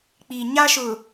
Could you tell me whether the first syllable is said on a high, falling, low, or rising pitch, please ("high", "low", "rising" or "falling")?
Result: low